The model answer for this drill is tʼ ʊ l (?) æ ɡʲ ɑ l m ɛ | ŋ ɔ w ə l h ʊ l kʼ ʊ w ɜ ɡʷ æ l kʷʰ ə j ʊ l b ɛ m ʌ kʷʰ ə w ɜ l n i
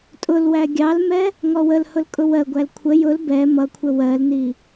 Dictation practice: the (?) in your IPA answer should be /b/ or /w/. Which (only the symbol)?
w